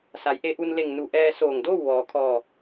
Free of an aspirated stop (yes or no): no